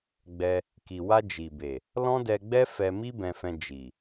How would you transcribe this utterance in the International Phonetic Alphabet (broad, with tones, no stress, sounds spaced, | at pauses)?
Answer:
ɡ͡b ɛ˧ | k i˨ w a˧ d͡ʒ i˨ b e˨ | l ɔ̃˦ d ɛ˧ ɡ͡b ɛ˦ f ɛ˧ m i˦ b ɛ̃˧ f ɛ̃˧ d͡ʒ i˨